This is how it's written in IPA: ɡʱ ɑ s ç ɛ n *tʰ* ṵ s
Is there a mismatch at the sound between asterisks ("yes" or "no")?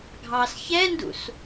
yes